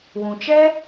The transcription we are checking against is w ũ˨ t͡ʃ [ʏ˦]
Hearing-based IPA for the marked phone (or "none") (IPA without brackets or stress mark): ɛ˦